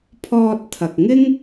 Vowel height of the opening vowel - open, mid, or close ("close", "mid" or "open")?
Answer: mid